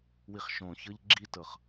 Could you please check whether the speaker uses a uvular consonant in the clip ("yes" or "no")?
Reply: yes